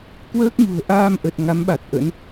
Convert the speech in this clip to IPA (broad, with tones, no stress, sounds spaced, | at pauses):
k w əː˦˥ k̚ ɲ ṳ˨˩ ə̯ ʔ aː˧ m ʔ ə˨˩ t̚ ŋ a˨˦ m ɓ a˨˩ t̚ ʔ ə̰˧˥ n